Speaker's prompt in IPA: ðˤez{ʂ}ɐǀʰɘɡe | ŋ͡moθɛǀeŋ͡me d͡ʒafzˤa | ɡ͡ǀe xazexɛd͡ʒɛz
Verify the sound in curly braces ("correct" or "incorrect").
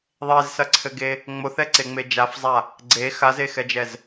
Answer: incorrect